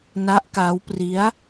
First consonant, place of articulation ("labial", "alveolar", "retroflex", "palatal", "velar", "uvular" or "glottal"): alveolar